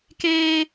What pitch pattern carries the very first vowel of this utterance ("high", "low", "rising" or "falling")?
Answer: high